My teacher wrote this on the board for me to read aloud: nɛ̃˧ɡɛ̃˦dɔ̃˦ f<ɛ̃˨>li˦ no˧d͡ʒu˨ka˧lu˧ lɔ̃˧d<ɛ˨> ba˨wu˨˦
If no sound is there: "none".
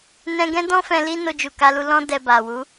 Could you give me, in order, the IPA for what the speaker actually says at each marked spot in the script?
ɛ̃˧, ɛ˨

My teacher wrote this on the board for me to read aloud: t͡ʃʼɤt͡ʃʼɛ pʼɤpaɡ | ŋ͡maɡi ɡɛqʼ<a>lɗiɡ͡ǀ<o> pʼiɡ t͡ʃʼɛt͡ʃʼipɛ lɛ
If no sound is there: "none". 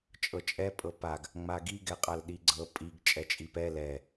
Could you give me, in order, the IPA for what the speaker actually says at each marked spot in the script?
a, ɤ

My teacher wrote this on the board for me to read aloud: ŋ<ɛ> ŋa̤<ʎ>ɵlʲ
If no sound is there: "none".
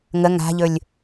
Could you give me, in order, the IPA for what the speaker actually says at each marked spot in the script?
ə, ʎ

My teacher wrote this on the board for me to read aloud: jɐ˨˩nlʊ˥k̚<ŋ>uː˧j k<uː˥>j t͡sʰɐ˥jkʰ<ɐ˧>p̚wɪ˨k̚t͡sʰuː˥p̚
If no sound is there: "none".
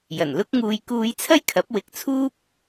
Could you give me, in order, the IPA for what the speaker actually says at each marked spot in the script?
ŋ, uː˥, ɐ˨˥

